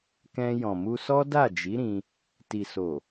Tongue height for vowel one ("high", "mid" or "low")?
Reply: mid